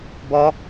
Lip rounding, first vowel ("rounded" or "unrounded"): rounded